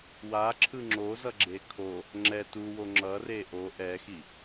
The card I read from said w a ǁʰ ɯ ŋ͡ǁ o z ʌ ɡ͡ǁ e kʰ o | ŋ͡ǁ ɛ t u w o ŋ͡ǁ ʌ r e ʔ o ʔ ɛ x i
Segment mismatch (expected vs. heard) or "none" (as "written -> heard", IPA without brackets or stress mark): none